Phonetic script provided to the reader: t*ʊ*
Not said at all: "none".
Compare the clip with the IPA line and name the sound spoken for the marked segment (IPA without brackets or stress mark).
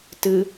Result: ɯ